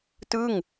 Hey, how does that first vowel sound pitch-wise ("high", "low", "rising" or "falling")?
falling